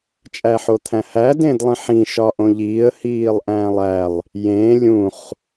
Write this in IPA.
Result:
t͡ʃʼ æ ħ o t̪ʰ æ̃ h æ d ẽ d lˠ ĩ ħ ĩ ʃ ɒ ʔ õ ʎ iː ə̯ h iː lˠ ʔ æ̃ː lˠ æ lˠ | j ẽː lʲ ũ χ

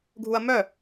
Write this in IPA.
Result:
ɡʱ u ɐ̯ m œ

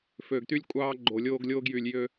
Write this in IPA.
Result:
f øː˨ ɡ t y˦ lʲ kʷʼ ɑː˦ ɡ͡ǃ o˨ lʲ oː˦ ɡ lʲ oː˦ ɡ j yː˨ lʲ j ø˦

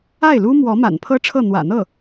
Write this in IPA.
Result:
a˥˩ ɪ̯ l u˥ m w ɔ˧˥ m a̰˨˩ n pʰ ɤ˥ ʈ͡ʂʰ ɤ˥˩ n̪ w ä̰˨˩ n̪ ɤ˥˩

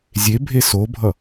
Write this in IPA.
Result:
zʲ e bʱ e s o bʱ ʌ

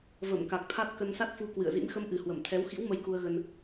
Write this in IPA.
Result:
v ə˧˩ m k a˨˩ k̚ t̪ʰ a˦˥ t̚ k ə˧ n s a˦˥ t̚ f u˧ k w ɨ̰˧˨ ə̯ z ḭ˧˥ m x ə˧ m ʔ ɨ˨˩ h w ə˧˩ m t̪ʰ ɛ˨˦ w x ḭ˧˥ w m ə˧ j k u˧ ə̯ ɣ ə˧ n

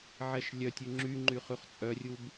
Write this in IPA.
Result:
ʕ ɛ ʃ lʲ œ tʲ ʉ ŋ͡ǁ y ŋ͡ǃ y χ ʉ χ t͡sʼ œ rʲ u b

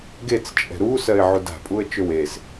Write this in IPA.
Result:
ɡ e t͡s t͡ʃʼ ɛ̤ ɾ u s ɜ ɪ̯ ʕ u d a̤ pʼ u ə̯ t͡ʃ ø w e s

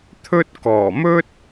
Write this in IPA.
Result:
t̪ʰ ɵ˥ t̚ k ɔː˨˩ m ɵ˥ t̚

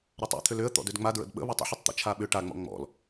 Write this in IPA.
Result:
ɾ a tˤ ɔ̰ t̪ʰ ʏ l ʏ ə̯ t̪ ɔ̰ d ʏ d ŋ͡m a d ɹ ə̰ d ɓ ə̰ β a tˤ ə̰ ħ ə tˤ t̪ ə̰ t͡ʃʰ a ɓ ʏ ʈ a ŋ͡m ɔ̰ ŋ͡m ɔ̰ l

